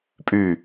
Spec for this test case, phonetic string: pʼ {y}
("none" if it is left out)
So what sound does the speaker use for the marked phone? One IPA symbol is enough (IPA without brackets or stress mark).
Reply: y